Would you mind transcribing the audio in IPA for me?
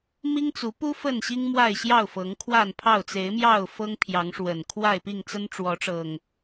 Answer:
m i˦ ŋ t͡s u˨˦ p u˦ f ə˥˨ n ɕ i˦ ŋ m w a˥˨ ɪ̯ ɕ j ɑ˥˨ ʊ̯ f ɤ˨˦ ŋ kʰ w a˥˨ n pʰ ɑ˥˨ ʊ̯ t͡s e˨˦ ɪ̯ m j ɑ˥˨ ʊ̯ f ɤ˦ ŋ pʰ j ɑ˨˦ ŋ ʂ w ə˨˩ n kʰ w a˥˨ ɪ̯ p i˥˨ ŋ t͡s ə˦ n ʈ͡ʂ w ɔ˨˦ ʈ͡ʂ ɤ˨˩ ŋ

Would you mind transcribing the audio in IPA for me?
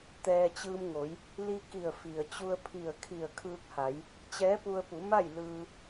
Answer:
t̪ ɛː˧ t͡ɕ ɯː˧ m ŋ o˩˧ j | l i˧ k i˧˩ ə̯ f i˩ ə̯ t͡ɕ u˧ ə̯ pʰ i˧˩ ə̯ kʰ i˧˩ ə̯ kʰ ɯː˧ k̚ h a˩˧ j | t͡ɕ ɛː˧˥ p u˧ ə̯ p u˩˧ m a˥˨ j l ɯː˧

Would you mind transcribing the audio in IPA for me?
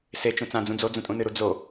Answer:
s e t͡ʃ ũ t͡s ã d͡z ũ d͡z o d͡z ũ tʼ ũ n ɨ ɾ u d͡z o

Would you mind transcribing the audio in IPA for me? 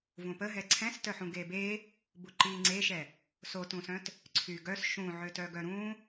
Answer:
v ũ p ə ɦ ɛ ǀʰ ɛ̃ s t œ ħ ũ ɡ e b e | b u ǃ i ŋ͡ǀ e ʃ ɛ | s o t ũ s œ̃ t | ǀʰ y ɡ œ s ʃ ũ ʕ ø t œ ɡ œ ɾ ũ

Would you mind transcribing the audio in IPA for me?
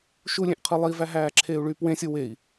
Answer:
ʃ u lʲ ẽ ʔ qʰ ɯ lˠ i v æ ɦ æː ǁʰ eː u̯ ɭ yː p w ẽ sʲ o w e i̯

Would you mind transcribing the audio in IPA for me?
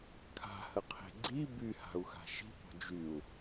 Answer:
kʰ a̤ h ə qʰ e̤ ɡ͡ǀ i b y h a̤ u̯ x a̤ ʃ i̤ p ɔ̤ d͡ʒ y u̯

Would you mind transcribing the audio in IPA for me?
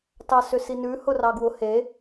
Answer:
t ɑ s ʏ s i n ʉ h ʊ r ɑ ɡ w ʊ h e

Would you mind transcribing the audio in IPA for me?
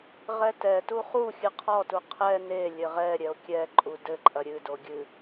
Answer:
ʁ ɛ t ɛ t u χ u xʲ ɨ qʰ ɔ t u qʰ ɛ n e lʲ ɘ ʁ ɛ ɾʲ ɛ o̯ kʲ ɛ ǃʼ u d ɘ ǃʼ ɐ ɾʲ ɨ d o ɡʲ ɨ

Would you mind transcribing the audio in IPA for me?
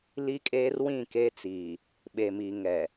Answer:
l i˦ kʼ eː˦ r w ĩ˦˨ k eː˦ t͡s iː˨ | ɓ e˨ m i˨ ŋ ɛ˨

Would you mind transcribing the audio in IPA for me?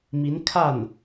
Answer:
m i˧˥ n kʰ a˥˩ n

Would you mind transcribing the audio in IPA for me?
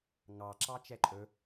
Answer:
ŋ ɑ ǁ ɑ t͡ʃ ɛ ǃʼ ɵ

